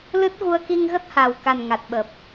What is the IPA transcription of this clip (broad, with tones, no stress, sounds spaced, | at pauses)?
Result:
l ɨ˦˥ t̚ ɣ u˧ ə̯ k i˧ ŋ ɣ ə˦˥ t̚ h a˨˩ w k a˨˩ n ŋ a˨˩ t̚ ɓ ə˨˩ p̚